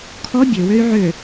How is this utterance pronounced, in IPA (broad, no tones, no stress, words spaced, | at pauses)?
kʰɔ bʲøwøy̯ ʕø